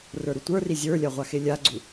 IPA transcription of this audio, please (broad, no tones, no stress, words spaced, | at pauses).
rə˞ɾutʷə˞ri zʲə˞lʲa ʁʷaxelʲaɡ͡ǀu